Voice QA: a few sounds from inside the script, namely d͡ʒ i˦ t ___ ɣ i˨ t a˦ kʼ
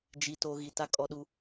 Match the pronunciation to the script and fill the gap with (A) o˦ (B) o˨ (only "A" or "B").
A